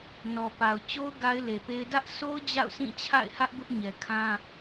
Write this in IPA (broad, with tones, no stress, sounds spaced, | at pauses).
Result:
n ɔ˨ p a˨ ʊ̯ t͡ɕ o˦ ʊ̯ ɡ a˦ ɪ̯ l e˨ p e˦ ɪ̯ d ä˦ ʔ sʰ o˦ ʊ̯ d͡ʑ a̰˦˨ ʊ̯ s ĩ˦˨ t͡ɕʰ a̰˦˨ ɪ̯ h ä˦ ʔ b ʊ˦ ʔ ɲ ɛ˨ kʰ ã˦